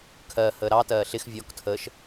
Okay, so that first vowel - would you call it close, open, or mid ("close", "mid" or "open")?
mid